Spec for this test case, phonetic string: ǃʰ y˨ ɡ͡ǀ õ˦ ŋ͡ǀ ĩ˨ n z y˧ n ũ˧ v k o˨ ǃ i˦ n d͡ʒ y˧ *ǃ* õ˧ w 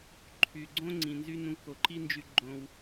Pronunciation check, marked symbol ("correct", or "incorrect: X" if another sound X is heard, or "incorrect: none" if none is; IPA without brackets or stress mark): incorrect: ɡ͡ǃ